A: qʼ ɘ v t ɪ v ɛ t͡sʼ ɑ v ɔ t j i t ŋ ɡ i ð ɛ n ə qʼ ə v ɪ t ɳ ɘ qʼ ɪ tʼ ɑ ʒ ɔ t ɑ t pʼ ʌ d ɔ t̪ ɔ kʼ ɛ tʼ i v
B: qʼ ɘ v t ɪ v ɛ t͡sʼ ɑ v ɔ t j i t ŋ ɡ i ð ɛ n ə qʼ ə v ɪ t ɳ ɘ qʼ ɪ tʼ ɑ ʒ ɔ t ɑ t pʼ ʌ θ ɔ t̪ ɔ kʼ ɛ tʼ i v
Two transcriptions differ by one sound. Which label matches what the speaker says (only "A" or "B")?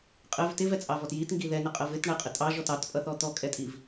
B